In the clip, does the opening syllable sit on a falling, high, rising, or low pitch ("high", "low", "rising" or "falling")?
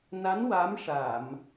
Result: rising